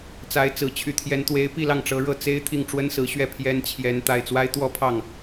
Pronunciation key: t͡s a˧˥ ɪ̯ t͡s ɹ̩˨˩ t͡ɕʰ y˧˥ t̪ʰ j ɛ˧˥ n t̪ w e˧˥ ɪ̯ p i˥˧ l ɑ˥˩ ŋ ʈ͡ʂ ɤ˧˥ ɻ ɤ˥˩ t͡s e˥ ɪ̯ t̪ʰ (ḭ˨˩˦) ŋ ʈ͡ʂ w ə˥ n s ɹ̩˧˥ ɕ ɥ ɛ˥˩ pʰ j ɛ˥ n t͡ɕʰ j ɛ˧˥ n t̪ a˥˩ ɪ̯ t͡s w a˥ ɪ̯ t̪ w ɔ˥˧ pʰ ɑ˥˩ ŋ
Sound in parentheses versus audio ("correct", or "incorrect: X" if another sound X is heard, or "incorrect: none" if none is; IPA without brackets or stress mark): incorrect: i˥˩